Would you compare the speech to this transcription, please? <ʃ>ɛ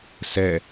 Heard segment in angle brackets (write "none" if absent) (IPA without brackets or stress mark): s